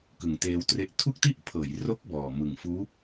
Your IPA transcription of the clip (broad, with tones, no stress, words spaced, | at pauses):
kɯ˨˩ŋteː˧wtre˦˥ʔ tʰu˥˩k̚ti˥˩ʔpʰɤː˩˦jro˦˥k̚ bɔː˨˩ mɯ˨˩ŋfuː˦˥